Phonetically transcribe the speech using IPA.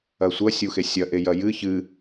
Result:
ɐ sʷ ɐ sʲ u x e sʲ ɐ ʔ e j ɐ j ɨ ç ɨ

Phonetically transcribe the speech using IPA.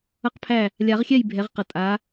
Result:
ʌ˥˨ q pʰ æ˥˨ | lʲ a˨˩˦ ʁ xʲ ɛ˥˨ j bʱ ɛ˨˦ ʁ q ʌ˨ tʼ a˨˦

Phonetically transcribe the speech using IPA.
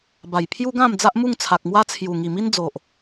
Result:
b a˨˩ j pʰ j u˦ ɡ ã˥˧ m d͡z a˦ ʔ m u˥˧ ŋ t͡sʰ a˨ k̚ m w a˦ t͡sʰ j u˨˩ ŋ i˨˩ m i˦ n d͡z o˨ ʔ

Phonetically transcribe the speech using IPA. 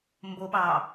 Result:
m b o ɓ ɑ

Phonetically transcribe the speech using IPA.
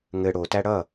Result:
ŋ ɘ ɽ o t æ ɽ ʌ

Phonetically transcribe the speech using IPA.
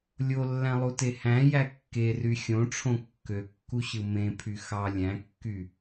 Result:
lʲ o lː æ̃ lˠ u t e h æ̃ j æ kː e r y xʲ õ ʈ͡ʂʰ õ kː ø kː u ɕ ɯ m ẽ pʰ y x ɑ lʲ æ̃ kː y

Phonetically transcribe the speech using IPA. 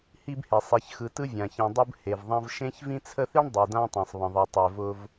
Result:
h i˦ b h e˩ sˤ e˨ ç x ɯ˨ t ɯ˥ vʲ ã˩ ç ɛ̃˨ dˤ ɯ˦ b h e˩ v ðˤ ã˦ v ʃ ẽ˦ ç v ĩ˦ t͡sʰ ə˦ θ i˥ ɳ dˤ ɯ˩ d ã˦ tˤ ɛ̃˩ sˤ β ə̃˩ ðˤ ɛ˩ tˤ ɛ˩ v ʊ˨ v

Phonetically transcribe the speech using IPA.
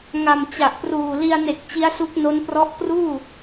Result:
ŋ a˨˩ m t͡ɕ a˨˩ ʔ p r uː˨˩ l i˧ a̯ n e˨˩ k̚ t͡ɕ i˦˥ a̯ s u˦˥ k̚ n o˦˥ n p r ɔ˦˥ ʔ k r uː˥˩

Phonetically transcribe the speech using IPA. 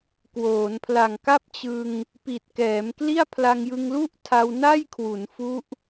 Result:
k w oː˩˦ n pʰ l a˨˩ ŋ k a˥˩ p̚ t͡ɕ ɯ˧ ŋ | p i˨˩ t̚ k ɛː˩˦ m k l i˥˩ a̯ pʰ l a˧ ŋ j ɯ˧ ŋ l u˥˩ ʔ tʰ a˧ w n a˥˩ j kʰ w u˩˦ n f u˦˥ ʔ

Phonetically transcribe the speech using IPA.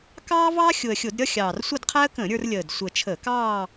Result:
k ɑː˥ v ɑ˥ xʲ ʊ˨˩ ə̯ xʲ ʊ˧˩˧ d ɾʲ ʌ˥˧ xʲ ɑː˨˩ r sʷ ʌ˥˧ d qʰ æ˥ ə̯ k ə̃ː˧˩˧ ɾʲ ə˞˧ r lʲ əː˨˩ d sʷ ə˨˩ t͡ʃʰ ə˧˩˧ k ɑː˥˧

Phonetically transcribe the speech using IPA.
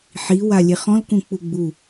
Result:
ħ i w a lʲ e χ ɔ̃ l k ũ k͡p u ɡ͡b u

